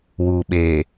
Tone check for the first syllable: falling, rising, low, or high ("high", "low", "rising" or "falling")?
low